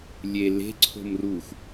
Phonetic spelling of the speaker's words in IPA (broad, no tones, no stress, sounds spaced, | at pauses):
lʲ e l e̤ ǀʰ o̤ m r u xʷ